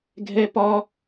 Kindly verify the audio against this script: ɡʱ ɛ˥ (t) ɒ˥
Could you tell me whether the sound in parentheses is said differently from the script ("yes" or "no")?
yes